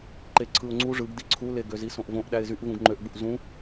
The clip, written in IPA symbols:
ǃeǀʰɯʊ̯ŋ͡ǀu ʐɯɡdi ǀʰule ɡøzisõʔvõʔ ɗæɪ̯zyʔ vũɡŋ͡ǃøʔɡ͡buʔ zũ

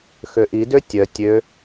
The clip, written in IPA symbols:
xøʔi døtʲœ tʲø

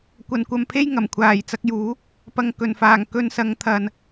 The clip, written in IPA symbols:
kʷɐ˨nkʷɐ˨˧mpʰe˥j ŋɐ˨˩mkʷʰaː˨˩jt͡sɐ˨˥k̚juː˨˥ | pɐ˨ŋ kɵ˨˩nfaː˨˩ŋ kɵ˧nsɐ˨˥ŋ t̪ʰɐ˨n

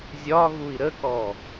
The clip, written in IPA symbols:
zʲɒɣui̯ ɾəkɔ

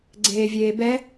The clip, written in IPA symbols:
ɡ͡ǀeːvʲeːbɛ

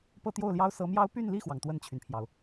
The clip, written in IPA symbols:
pɤ˥˧t̪jo˥˩ʊ̯ljɑ˥ʊ̯ sɤ˧˥mjɑ˥ʊ̯ py˥˧nli˥˩xwɑ˩ŋ t̪wə˥˩nt͡ɕʰy˩npʰjɑ˩ʊ̯

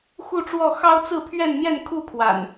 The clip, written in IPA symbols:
xu˥˨ʈ͡ʂwɔ˥˨ xɑ˦ʊ̯t͡sɹ̩˥˨pʰɥɛ˥˨n n̪jɛ˥˨nkʰu˥˨pʰwa̰˨˩n

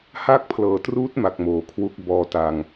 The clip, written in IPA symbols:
ha˥˩k̚ pʰlɤː˨˩truː˦˥t̚ma˨˩k̚ moː˨˩kʰwu˦˥k̚ bɔː˧ta˧ŋ

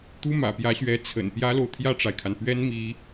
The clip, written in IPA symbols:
t̪u˥mä̰˨˩pjä˧˥ɕɥɛ˧˥ t͡sʰə̰˨˩npjä˥lo˨ʊ̯ t̪ʰjä˥˩ʈ͡ʂa˩ɪ̯kʰa˩n pɥɛ˥nmi˧˥

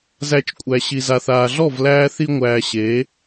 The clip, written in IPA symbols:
zæ˧t͡ʃkʷʼæ˨ ɕi˨za˨θaː˨ɮɔ˦˨v læː˧θi˧ ŋʷæː˧ɕeː˨˦

